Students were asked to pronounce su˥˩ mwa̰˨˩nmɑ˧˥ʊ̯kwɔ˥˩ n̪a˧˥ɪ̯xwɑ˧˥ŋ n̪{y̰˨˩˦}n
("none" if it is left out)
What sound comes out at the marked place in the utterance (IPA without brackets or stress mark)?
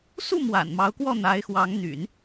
y̰˨˩˦